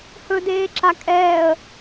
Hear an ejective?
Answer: yes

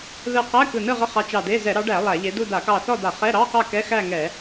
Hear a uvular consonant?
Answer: yes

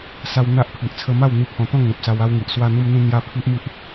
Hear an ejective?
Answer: no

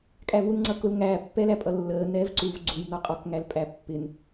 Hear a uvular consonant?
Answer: yes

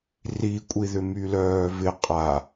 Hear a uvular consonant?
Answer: yes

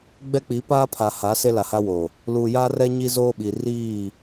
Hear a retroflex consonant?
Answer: no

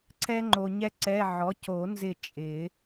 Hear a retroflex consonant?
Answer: no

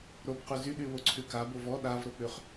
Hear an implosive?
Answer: yes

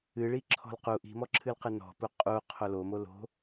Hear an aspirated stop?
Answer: yes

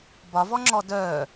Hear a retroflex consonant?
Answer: no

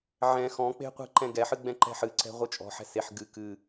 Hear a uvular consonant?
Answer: yes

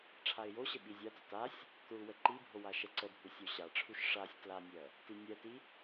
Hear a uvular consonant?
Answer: no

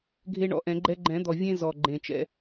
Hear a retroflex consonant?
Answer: yes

